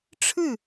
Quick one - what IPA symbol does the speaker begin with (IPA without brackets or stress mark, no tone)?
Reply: ʈ͡ʂʰ